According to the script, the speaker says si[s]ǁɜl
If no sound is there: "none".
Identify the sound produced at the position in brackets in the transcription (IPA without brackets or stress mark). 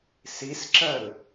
s